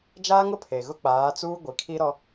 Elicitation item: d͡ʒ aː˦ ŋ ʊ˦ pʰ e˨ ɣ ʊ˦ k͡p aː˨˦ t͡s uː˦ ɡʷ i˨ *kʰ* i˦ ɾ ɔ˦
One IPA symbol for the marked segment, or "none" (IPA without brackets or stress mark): kʰ